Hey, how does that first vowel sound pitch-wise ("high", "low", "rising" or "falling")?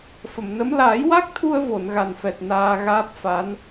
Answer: low